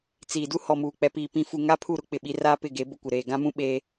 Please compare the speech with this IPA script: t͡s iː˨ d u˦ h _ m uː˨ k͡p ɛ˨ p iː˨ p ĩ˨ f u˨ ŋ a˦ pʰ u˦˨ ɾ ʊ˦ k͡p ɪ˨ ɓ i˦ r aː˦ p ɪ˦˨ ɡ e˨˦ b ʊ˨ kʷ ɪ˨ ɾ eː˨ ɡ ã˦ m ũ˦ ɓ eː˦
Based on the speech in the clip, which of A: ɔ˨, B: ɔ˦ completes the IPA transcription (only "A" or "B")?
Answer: A